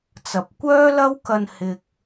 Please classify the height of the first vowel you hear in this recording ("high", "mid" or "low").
low